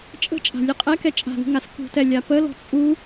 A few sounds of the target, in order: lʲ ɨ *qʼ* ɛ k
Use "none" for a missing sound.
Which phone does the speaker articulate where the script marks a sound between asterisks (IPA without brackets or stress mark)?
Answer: qʼ